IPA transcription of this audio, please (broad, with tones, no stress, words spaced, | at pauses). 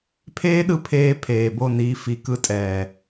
pʰeː˦ɗɯ˧ pʰeː˧ pʰeː˨bo˦˨niː˧ fi˧kɯ˦tʼɛː˧